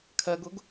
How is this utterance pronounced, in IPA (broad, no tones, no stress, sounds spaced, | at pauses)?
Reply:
kʰ ɜ ɡ ʊ ɡ